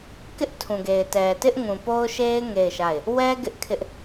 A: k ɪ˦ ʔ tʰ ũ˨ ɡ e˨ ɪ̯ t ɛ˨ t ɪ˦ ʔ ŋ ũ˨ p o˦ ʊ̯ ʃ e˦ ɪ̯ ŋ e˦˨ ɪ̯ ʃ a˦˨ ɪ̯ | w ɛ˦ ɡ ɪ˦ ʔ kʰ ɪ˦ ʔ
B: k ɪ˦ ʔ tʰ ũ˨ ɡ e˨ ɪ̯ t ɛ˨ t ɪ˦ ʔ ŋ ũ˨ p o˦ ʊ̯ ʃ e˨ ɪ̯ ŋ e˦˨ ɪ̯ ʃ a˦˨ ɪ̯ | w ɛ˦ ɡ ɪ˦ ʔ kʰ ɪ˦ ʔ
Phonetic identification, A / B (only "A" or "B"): A